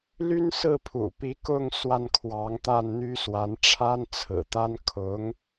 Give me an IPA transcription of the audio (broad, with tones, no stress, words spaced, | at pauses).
ly˥nsɹ̩˥˩ pʰṵ˨˩pi˧˥ kʊ˥˧ŋ swa˥˩nkʰwɑ˧˥ŋ t̪a˥˩nn̪y˥swa˧˥n ʈ͡ʂʰa˥nt͡sʰɹ̩˨˩t̪a˥n kʰʊ˧˥ŋ